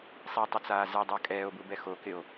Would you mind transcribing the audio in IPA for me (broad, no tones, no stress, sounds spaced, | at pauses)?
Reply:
sˤ i tˤ ɪ t͡s aː z ɛ dˤ a kʼ ɛː o̯ b u b ɛ x o k ɪ o̯